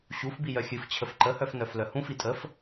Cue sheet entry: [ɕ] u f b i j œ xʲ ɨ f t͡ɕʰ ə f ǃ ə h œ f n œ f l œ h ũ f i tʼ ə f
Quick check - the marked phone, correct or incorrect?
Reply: correct